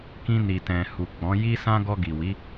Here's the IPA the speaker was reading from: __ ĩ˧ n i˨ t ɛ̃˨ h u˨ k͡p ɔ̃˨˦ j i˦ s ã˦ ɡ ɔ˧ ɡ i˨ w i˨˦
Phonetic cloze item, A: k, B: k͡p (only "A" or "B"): A